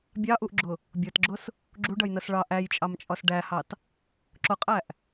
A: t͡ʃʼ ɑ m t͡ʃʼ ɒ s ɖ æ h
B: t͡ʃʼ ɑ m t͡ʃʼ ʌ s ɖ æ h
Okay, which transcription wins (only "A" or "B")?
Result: A